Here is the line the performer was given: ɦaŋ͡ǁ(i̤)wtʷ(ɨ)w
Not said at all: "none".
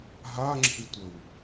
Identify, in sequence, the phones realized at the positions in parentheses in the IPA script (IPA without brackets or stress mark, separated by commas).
i̤, ə